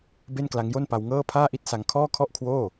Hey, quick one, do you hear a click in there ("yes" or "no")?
no